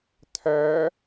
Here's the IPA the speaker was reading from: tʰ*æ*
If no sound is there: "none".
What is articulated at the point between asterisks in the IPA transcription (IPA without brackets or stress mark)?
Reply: æ